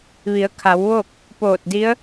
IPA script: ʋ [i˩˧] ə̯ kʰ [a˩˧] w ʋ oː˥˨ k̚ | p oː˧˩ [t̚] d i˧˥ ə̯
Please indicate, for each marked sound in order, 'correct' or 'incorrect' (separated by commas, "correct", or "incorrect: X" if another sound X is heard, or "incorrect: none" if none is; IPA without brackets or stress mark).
correct, correct, correct